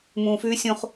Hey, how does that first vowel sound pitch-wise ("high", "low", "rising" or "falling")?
low